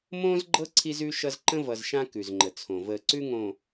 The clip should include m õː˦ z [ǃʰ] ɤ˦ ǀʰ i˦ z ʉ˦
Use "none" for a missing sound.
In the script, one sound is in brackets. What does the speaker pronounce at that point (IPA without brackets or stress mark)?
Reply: ɡ͡ǃ